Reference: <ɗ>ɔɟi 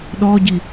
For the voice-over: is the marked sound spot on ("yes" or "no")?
yes